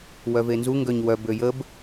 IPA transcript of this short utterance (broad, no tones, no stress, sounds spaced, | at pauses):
w œ v e n z u ŋ ɡ œ ɲ w œ b ø j ə b